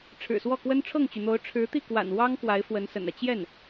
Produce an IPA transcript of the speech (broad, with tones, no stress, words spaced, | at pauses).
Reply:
ʈ͡ʂʰɻ̩˨˩swɔ˥˩kwə˥n ʈ͡ʂʰɤ˥˩ŋt͡ɕy˩n̪o˧˥ʊ̯ ʈ͡ʂʰɻ̩˧˥t̪i˥˩kwa̰˨˩n wɑ˥ŋ kwa˧˥ɪ̯fwə˧˥nsə̰˨˩nä˦ t͡ɕjɛ˥˩n